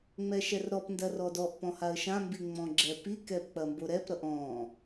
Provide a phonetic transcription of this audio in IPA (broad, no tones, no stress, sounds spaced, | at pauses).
ŋ͡m ɛ ʃ ɛ r ɾ ɔ p n d ɐ r ɔ d ɔ ʔ p ɔ̃ h a ə̯ ʃ ã m b i ŋ͡m ɔ̃ ɡ͡ǁ ɛ p i k ɛ p k͡p ɐ m b o ɾ ɛ p ɾ ʌ ʔ ɔ̃